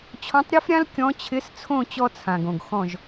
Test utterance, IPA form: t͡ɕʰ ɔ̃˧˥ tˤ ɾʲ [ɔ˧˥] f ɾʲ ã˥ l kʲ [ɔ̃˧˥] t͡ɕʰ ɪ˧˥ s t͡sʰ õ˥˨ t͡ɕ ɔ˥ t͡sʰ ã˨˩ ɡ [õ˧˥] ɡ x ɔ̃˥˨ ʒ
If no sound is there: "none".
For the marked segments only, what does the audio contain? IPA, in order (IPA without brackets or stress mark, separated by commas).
ɔ˥, ɔ̃˧˥, õ˨˩